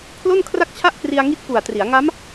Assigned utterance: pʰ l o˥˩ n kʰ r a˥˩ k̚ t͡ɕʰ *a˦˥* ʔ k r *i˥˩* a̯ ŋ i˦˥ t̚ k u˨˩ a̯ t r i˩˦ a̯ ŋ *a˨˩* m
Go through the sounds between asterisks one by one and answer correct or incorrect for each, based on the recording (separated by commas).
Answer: incorrect, incorrect, incorrect